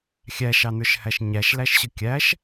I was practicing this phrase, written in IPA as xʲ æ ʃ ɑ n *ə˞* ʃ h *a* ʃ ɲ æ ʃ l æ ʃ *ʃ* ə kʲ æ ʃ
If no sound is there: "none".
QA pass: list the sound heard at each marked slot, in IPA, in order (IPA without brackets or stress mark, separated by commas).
ə˞, æ, ɕ